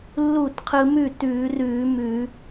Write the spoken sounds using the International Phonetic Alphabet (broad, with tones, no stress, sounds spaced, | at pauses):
lː uː˥˩ t qʰ ɯ˧ m ʉ˥˩ t ʉː˧˩˧ r ʉː˧˩˧ m ʉ˧˩˧